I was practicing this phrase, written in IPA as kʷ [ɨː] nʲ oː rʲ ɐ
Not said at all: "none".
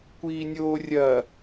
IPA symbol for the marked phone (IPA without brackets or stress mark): iː